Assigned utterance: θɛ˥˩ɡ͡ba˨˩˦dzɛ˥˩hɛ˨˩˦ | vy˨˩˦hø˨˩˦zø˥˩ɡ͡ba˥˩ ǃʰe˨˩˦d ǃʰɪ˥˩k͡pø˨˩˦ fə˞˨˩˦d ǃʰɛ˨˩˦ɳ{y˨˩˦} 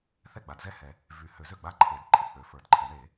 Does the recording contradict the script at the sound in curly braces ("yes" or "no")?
yes